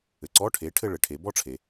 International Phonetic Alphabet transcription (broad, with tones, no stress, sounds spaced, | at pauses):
ɘ˩ ǀ ɔ˧˥˧ ʈʰ e˩˥ ʈʰ ɘ˥˧ ɭ ɘ˩ ʈʰ e˩˧ b ɔ˥˧ ʈ͡ʂʰ e˩